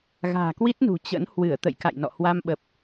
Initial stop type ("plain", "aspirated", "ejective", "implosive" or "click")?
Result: plain